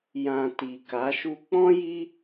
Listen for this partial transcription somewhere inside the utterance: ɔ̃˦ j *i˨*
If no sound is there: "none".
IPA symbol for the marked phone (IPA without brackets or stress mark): i˦